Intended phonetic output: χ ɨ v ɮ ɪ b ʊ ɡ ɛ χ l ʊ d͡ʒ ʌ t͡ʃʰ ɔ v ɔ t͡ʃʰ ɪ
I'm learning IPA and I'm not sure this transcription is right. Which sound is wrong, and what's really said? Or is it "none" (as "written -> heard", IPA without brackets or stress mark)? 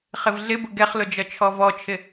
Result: ɨ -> ɪ